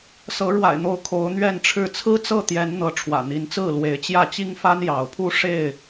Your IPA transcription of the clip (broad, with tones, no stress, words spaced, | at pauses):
sɤ˨˦ ɻwa̰˨˩ɪ̯n̪o˨˦ʊ̯ kʰo˨˦ʊ̯n̪ɥɛ˥˨nʈ͡ʂʰɻ̩˥˨ t͡sʰɹ̩˦t͡sɤ˥˨t̪jɛ˨˦n n̪ɤ˨˦ʈ͡ʂʰwä̰˨˩n̪i˨˦nt͡sɹ̩˥˨ lwe˨˦ɪ̯t͡ɕjä˥˨t͡ɕi˦ŋfa˦n jɑ˨˦ʊ̯pʰu˦ ʂe˥˨ɪ̯